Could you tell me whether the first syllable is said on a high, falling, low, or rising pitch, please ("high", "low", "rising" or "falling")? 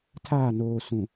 falling